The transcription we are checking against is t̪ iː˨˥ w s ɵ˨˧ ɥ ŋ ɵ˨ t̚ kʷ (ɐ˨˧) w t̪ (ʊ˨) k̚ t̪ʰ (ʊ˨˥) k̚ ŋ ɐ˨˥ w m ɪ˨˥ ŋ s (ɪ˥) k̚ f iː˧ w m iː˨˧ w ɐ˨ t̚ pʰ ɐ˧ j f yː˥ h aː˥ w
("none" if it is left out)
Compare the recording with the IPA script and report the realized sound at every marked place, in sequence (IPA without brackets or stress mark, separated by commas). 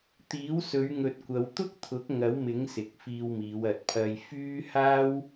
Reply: ɐ˨˧, ʊ˥, ʊ˨˥, ɪ˨˥